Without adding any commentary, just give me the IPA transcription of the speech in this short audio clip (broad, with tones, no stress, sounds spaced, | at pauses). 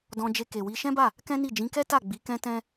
d ɔ̃˧ d͡ʒ e˧ k e˨ w i˧ ʃ ɛ̃˦ b a˦˨ | k ɛ̃˦ n i˦˨ d͡ʒ ĩ˨˦ k ɛ˦ t a˦˨ ɡ͡b i˨˦ k ɛ̃˦ t ɛ̃˦